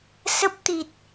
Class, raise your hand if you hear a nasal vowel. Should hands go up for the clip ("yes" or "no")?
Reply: no